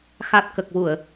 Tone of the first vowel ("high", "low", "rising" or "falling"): low